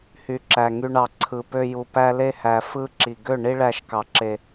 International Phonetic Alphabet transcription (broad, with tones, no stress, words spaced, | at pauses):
hy˨ǁæ˨ŋy˧ɳɑ˨ ǀʰɯ˨pø˧ju˨ pæ˦le˦hæ˨ fɯ˦ǁi˨ ɡø˦˨ ɳi˦ɭæ˧ʃ kɑ˨ǁe˨